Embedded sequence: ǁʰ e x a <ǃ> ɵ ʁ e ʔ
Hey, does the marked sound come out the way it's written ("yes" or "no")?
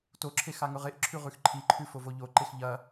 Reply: no